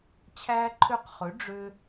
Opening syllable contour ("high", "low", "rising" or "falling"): high